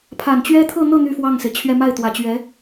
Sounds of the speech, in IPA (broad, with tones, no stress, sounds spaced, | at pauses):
pʰ a˨˩ n t͡ɕ ɥ ɛ˥ t̪ʰ ɤ˥˧ n̪ ɤ˥˧ n̪ y˥˧ f w ɑ˥˩ ŋ s e˩ ɪ̯ t͡ɕʰ ɥ ɛ˥˧ m a˥˩ ɪ̯ t̪ w ä˨˩ t͡ɕ ɥ ɛ˧˥